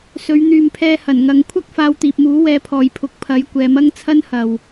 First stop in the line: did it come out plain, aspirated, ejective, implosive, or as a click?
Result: aspirated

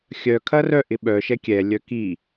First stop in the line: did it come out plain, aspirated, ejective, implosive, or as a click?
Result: aspirated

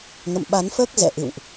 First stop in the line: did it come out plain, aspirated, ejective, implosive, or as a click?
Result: implosive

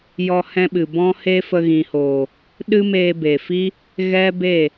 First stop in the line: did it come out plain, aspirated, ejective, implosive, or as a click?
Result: implosive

